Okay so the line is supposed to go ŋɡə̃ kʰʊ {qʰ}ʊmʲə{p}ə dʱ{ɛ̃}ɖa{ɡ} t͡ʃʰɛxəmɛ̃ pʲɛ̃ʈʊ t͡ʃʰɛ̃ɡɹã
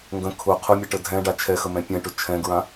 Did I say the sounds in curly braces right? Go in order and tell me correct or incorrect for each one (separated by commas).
correct, incorrect, correct, incorrect